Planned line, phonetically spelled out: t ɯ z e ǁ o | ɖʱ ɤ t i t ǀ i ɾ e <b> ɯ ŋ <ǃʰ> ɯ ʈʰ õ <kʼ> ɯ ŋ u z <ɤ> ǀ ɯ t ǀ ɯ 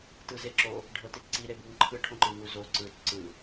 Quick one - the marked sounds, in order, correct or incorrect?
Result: correct, correct, incorrect: ǃ, incorrect: o

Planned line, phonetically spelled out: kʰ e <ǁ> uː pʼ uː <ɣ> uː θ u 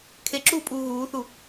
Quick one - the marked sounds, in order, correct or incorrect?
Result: correct, correct

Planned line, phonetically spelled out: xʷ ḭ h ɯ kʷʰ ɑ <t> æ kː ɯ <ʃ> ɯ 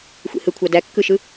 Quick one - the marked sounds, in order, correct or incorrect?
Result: incorrect: d, correct

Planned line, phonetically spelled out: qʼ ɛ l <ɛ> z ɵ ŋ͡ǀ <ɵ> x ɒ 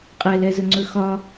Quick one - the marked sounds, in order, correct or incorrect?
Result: correct, correct

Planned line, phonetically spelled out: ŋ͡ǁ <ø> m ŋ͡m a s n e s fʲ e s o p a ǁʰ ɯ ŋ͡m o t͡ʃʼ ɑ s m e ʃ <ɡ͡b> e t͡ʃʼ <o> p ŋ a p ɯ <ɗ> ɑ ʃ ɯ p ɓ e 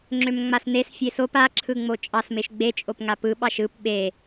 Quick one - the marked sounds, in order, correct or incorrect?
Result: correct, correct, correct, incorrect: ɓ

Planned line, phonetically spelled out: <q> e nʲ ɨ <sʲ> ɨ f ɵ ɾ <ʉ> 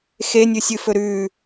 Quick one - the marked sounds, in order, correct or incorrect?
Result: incorrect: x, correct, correct

